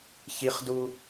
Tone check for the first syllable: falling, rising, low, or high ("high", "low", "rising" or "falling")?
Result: high